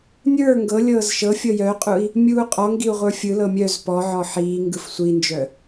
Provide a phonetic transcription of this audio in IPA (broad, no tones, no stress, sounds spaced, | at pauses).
nʲ ə˞ ŋ ɡ ɤ lʲ ɤː z ʃ ɤ fʲ ɤ j œ qʼ u i̯ | mʲ uː qʼ ɔ ŋ ɡ i u̯ ʁʷ ə˞ fʲ ɯ l ɤ mʲ œ z p ɔ ʕ ɔ ħ iː ŋ ɡ ɯ f sʷ i n d͡ʒ œ